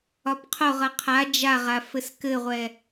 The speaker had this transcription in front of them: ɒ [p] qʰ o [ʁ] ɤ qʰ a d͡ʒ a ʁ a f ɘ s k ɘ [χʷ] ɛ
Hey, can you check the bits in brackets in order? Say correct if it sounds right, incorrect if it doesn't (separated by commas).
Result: correct, correct, incorrect